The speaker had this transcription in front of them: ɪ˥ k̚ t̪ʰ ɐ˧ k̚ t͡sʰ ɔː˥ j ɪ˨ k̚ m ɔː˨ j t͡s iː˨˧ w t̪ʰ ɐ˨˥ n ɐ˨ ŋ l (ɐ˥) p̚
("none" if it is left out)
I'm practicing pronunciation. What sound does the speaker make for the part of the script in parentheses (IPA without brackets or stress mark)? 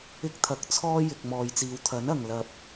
ɐ˥